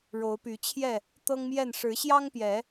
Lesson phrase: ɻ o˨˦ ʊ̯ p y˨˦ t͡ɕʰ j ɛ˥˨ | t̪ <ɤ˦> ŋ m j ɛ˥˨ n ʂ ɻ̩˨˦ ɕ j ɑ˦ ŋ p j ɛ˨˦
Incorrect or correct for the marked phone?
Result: correct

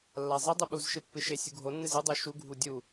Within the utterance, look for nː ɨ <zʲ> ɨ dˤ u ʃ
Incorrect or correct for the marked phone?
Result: incorrect: z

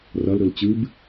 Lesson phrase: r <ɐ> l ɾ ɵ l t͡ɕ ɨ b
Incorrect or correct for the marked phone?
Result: correct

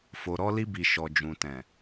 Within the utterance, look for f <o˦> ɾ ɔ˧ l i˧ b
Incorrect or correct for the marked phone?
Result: incorrect: o˨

